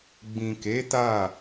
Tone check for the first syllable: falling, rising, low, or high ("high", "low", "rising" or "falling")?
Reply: low